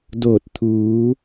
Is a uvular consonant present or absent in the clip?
absent